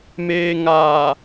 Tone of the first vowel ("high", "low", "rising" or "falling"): low